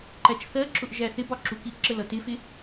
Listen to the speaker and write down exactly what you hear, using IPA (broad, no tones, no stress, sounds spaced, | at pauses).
ǃ æ t͡ʃ θ ɜ ǁ ʊ ʔ ʒ æ θ ɪ b ɒ ǁ u k i ʔ ǁ ə l ʌ t ɪ f ɪ